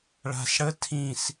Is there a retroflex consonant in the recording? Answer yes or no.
yes